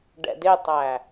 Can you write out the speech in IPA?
ɖ ɛ̰ d ɪ tˤ æ

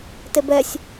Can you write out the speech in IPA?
t e b ɛ sʲ

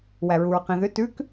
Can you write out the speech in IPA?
w æ ɹ u ɹ q ĩ ð ʏ t ʉ k

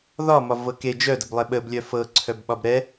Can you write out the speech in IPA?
ð ɒ m ɒ v ɤ k e d͡ʒ œ d ə b lˠ ɛ ɓ ə b lʲ œ f ɤ ǀʰ œ b ɓ ɒ b ɾ ɛ

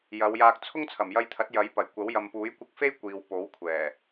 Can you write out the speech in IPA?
j ɐ˨˧ w j aː˧ k̚ t͡sʰ ʊ˥ ŋ t͡sʰ ɐ˨˩ m j ɐ˧ j t̪ʰ ɐ˨˥ t̚ j ɐ˨˥ j p ɐ˨˩ j kʷ ɐ˨˥ w j ɐ˨ m p uː˨˥ j kʷ ɪ˧ k̚ f e˥ j kʷ iː˨ w p o˨˥ w kʷʰ ɛː˨˩

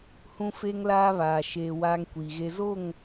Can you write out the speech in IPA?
h ũ˦ f e˦ ŋ l aː˦ β aː˨ ʃ eː˨ w aː˦ ŋ kʷ iː˨ ɣ e˦ z o˦˨ ŋ

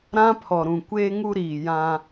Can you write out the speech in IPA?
ɾ ã˦ pʰ ɔ˨ ɾ ũ˨ kʷ eː˦ ŋ u˦ ɾ iː˨ j ã˦

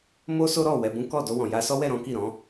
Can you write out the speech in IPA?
m o˦ s o˦ ɾ ɔ˦˨ w ɛ˧ b ũ˦ k ɔ˦˨ d o˧ w ɔ̃˨ j a˧ s ɔ˦ w ɛ˦˨ ɾ ɔ̃˨˦ k i˦˨ ɾ ɔ̃˨˦

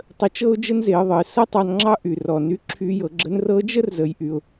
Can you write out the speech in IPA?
tˤ ə˧ t͡ʃ ɤ˥ ʊ̯ d͡ʒ ə˥ n z e˩˧ ə̯ ðˤ ə˩ ɪ̯ s ə˥ tˤ ɑ˧ n ŋ͡ǁ ɑ˥ ʔ y˩ r ɔ˩ n y˧ ǁʰ y˧ j ɤ˩˧ ɡ͡ǁ ə˧˥ n r ɤ˧˥ d͡ʒ ə˥ r z ə˩˧ j ʔ y˩ ʊ̯

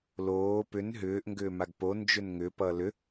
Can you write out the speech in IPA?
l oː p ʏ n ɦ ʏː ʔ ŋ ɡ ʏː m a ɡ p o n d͡ʒ ʏ n ŋ ʏ p ʌ l ʏ

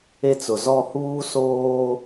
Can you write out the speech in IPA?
e˦ t͡s ʊ˨ z ɔ˦˨ h uː˦ s oː˦

